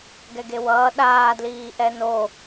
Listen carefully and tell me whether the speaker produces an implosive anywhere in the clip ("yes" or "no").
yes